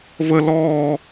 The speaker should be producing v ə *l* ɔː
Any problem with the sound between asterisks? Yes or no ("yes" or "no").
no